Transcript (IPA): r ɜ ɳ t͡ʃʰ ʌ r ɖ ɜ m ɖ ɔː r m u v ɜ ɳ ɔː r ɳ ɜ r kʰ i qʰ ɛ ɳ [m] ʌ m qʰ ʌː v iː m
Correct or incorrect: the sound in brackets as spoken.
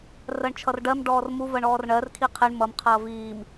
correct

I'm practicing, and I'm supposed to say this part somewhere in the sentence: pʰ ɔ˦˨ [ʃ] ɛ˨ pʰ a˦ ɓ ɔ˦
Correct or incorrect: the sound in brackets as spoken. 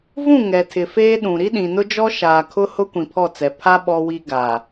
incorrect: t͡s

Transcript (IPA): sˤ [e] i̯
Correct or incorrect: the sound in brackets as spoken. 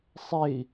correct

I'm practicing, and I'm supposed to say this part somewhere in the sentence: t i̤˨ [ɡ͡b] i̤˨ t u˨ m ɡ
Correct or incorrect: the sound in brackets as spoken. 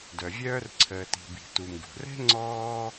incorrect: b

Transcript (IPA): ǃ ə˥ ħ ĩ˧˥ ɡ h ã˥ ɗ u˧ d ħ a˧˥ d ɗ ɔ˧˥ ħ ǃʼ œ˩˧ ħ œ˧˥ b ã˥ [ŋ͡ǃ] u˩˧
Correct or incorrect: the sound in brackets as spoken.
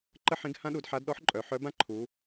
incorrect: ǃʰ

